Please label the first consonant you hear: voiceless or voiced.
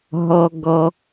voiced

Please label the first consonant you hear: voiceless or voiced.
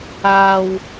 voiced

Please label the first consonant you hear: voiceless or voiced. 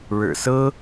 voiced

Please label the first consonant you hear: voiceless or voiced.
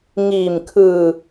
voiced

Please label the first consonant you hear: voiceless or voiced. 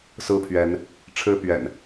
voiceless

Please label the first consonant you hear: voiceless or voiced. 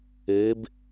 voiced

